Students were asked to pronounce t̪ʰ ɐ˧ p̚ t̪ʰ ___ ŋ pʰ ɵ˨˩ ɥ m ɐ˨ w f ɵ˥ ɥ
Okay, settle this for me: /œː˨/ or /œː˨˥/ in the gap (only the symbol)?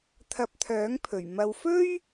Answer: œː˨˥